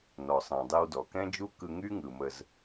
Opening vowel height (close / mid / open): mid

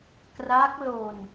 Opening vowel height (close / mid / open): open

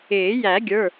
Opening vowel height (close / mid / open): close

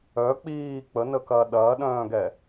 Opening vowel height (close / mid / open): mid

